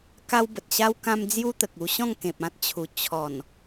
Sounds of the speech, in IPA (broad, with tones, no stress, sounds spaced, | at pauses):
k a˦ w b ə˨ t̚ ɕ a˦ w k ã˦ m d͡z j u˦ t̪ ə˨ k̚ u˧ ɕ ɔ̃˥˧ ŋ k ẽ˨ p̚ ã˦ t̚ t͡ɕʰ u˨˩ t͡ɕʰ ɔ˨˩ n